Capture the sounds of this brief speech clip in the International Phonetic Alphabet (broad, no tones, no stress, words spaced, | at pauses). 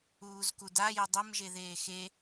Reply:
uːzkuda jədˤem ʒeðeːxe